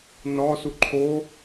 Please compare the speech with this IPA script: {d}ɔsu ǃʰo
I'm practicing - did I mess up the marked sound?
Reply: yes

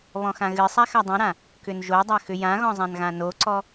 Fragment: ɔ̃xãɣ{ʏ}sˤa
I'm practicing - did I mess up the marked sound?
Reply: yes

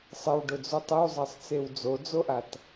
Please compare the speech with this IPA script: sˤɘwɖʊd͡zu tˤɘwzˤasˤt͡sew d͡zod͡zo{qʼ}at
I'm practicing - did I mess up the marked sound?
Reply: yes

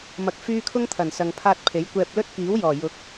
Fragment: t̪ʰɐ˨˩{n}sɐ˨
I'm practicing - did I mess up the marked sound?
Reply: no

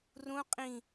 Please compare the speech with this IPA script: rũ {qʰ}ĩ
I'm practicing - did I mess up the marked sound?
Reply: yes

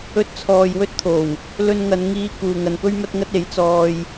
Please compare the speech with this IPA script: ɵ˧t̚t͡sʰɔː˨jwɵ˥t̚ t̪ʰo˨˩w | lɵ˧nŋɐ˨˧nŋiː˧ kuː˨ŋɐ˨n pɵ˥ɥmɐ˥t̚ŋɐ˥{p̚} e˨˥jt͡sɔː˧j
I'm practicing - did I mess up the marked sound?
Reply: yes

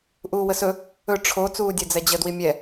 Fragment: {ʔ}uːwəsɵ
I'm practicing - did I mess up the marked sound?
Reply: no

